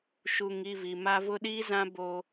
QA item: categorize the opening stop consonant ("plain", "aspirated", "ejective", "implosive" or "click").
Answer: implosive